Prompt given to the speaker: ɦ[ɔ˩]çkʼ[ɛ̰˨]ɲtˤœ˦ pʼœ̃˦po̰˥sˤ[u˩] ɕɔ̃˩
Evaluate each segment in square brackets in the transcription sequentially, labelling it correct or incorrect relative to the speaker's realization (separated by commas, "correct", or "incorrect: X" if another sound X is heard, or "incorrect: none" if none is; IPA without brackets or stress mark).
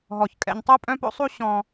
correct, correct, incorrect: u˦